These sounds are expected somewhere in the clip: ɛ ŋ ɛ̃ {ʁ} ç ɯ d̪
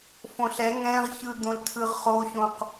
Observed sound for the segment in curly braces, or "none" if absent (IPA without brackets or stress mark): ʁ